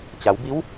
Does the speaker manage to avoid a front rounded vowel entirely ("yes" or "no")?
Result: yes